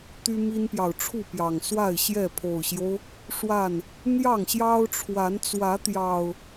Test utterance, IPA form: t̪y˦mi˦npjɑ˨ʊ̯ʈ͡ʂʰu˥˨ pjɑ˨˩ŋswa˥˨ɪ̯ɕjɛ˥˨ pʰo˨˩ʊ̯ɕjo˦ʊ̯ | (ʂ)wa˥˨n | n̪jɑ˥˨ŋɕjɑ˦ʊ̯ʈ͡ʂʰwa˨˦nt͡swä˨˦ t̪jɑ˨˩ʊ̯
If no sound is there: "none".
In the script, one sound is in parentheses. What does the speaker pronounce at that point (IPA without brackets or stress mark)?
ʂ